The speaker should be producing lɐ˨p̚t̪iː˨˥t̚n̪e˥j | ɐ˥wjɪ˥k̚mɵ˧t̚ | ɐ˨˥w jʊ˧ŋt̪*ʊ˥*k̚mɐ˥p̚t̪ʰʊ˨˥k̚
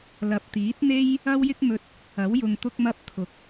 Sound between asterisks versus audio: correct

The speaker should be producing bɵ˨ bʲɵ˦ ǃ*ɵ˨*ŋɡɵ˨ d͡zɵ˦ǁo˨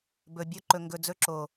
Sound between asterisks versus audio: correct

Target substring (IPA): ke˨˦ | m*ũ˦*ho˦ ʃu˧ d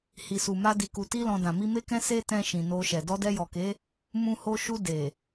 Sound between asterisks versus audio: correct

